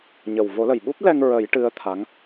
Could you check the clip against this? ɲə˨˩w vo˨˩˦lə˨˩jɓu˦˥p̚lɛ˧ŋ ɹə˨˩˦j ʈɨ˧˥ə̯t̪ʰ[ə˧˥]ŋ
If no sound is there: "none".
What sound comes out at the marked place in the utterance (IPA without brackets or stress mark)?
a˧˥